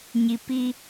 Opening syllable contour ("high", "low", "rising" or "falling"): low